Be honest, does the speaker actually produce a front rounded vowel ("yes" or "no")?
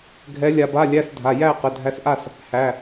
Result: no